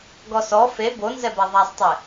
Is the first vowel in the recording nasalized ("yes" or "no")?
no